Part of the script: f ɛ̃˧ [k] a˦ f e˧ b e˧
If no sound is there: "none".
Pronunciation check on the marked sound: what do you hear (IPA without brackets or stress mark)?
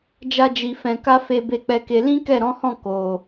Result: k